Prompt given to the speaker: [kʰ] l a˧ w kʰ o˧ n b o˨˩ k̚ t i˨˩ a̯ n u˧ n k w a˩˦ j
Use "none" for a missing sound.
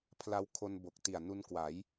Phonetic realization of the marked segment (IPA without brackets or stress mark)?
pʰ